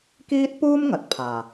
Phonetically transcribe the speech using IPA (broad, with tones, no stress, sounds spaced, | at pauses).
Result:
k iː˥ t̚ p uː˥ m ŋ ɐ˨ t̚ pʰ aː˨˩